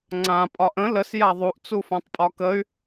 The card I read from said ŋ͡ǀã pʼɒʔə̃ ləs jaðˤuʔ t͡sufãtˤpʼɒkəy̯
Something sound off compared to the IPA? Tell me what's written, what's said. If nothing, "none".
none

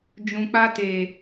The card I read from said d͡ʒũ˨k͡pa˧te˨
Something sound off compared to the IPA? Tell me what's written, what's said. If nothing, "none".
none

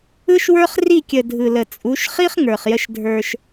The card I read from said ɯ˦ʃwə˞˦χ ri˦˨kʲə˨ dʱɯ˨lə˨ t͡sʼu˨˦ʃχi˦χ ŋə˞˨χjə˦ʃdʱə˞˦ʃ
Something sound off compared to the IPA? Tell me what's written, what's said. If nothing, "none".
none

